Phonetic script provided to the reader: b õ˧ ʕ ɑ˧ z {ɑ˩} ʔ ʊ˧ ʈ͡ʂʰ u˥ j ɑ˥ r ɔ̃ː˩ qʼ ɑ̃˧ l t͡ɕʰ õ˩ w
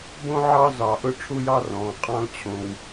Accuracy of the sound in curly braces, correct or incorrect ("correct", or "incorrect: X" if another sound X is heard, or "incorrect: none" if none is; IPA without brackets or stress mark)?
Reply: correct